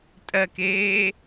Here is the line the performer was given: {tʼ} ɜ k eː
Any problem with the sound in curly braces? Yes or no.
no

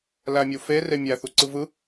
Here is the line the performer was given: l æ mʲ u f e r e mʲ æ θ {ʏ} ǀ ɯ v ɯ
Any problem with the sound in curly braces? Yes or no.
yes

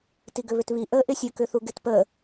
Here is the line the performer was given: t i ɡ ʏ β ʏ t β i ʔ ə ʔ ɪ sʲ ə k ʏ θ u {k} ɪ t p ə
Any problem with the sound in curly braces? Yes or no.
yes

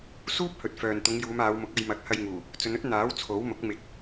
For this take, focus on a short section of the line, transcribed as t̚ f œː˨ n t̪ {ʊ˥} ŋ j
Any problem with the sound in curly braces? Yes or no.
yes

